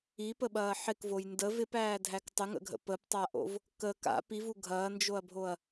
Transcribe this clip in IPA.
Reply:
i p ə ɓ ɐː ħ ɪ k v o j n d ə v ɪ p æː dʱ æ k tˤ ə ŋ ə̰ ɡʱ ə̰ p ə p tˤ a ʔ o̰ v | k ə k a̰ p i v u ɡʱ ɐː n d͡ʒ o ɐ̯ bʱ o ɐ̯

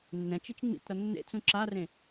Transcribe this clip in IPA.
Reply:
nː ɛ̃ t͡ʃ i t͡ʃ ŋ͡m ḭ t ɾ ʌ nː ḛ t͡s ũ ǁ a r ẽ

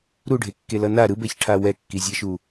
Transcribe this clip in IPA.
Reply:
ɾ u ɖʱ e kː e l ʌ n a ɾ ɯ b ɛ ç ʈʰ a w ɛ kː i zʲ ɛ ʃ u

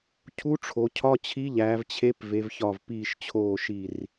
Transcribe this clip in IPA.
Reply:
cʰ u˧˥ ʈ͡ʂʰ o˩˧ cʰ ɒ˧˥˧ t͡ɕʰ i˧˥ ʎ æː˩˧ v t͡ɕʰ e˧˥ p v e˩˧ v ç ɒ˧˩ v p iː˧˩ ʃ t͡ɕʰ oː˧˩ ʃ i˧˩ r

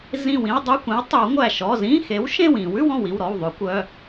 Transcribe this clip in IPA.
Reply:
z ĩ˧˩ w ĩ˧˥˧ w dˤ ʉ˧˥˧ kʷ ĩ˩˥ w tˤ ʉ˨˩˦ w ŋʷ æ˧˩ ʃ ɔ˩˧˩ z ĩ˧˥˧ x e˩˥ w ʃ ẽ˥˨ w ĩ˨˩˦ w ʉ˧˥˧ w ɔ̃˥˨ w i˩˧˩ w ɾ ɔ˩˧˩ w ðˤ ʉ˨˩˦ kʷ œ˩˧˩

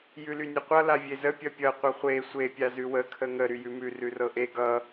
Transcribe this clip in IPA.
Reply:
j ʉ l y nʲ ə qʷ ʌ l a vʲ e z ə pʲ ʌ pʲ ʌ qʷ ʌ χʷ e sʷ e pʲ a z ʉ w ə kʰ ə ŋ ə ɾ y j ʉ m ʉ r ʉ r ɤ ʔ e ɡ ʌ

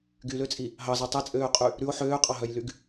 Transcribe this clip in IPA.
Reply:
ɡ y l ø t͡sʼ i | ɦ ɑ z ɑ tˤ ɛ t͡sʼ øː qʼ y | ɾ ʉ o̯ ħ øː qʼ ɑ ɦ œ j l y ɡ

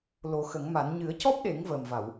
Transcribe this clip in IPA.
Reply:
l o˨˩˦ x ə˨˩˦ ŋ m a˨˩˦ n ɲ ɨ˨˩˦ ə̯ c ɔ˦˥ p̚ ɗ e˨˩˦ ŋ v əː˨˩ m v a˨˩˨ w

